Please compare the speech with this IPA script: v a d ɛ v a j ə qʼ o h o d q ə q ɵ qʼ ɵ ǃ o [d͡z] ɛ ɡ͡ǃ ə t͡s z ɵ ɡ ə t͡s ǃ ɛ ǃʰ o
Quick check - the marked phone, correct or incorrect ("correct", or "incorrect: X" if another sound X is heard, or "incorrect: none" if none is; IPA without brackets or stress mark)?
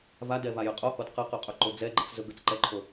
correct